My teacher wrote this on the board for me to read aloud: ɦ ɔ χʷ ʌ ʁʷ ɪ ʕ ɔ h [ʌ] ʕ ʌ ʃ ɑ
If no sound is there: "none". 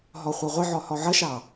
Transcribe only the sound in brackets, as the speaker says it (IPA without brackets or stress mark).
ɔ